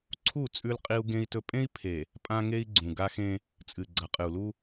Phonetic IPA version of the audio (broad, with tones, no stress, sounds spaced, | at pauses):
ǀʰ u˦˨ t͡sʼ ʉ˦ l qʼ i˦ u̯ ɡ ẽ˦ i̯ t ɵ˦ pʼ ẽ˦ i̯ pʰ e˨ | pʼ ã˦ ŋ e˦ i̯ ɡ͡ǀ ũ˨ ɡ a˦ x ẽ˦ | t͡sʼ ɨ˨ ɡ͡ǀ ɐ˨ qʼ ɨ˨ u̯ l u˦